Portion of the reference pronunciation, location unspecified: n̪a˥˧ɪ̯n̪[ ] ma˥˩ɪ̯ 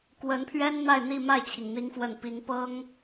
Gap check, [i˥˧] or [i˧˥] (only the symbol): i˥˧